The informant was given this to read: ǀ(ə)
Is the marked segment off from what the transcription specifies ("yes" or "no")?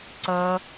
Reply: no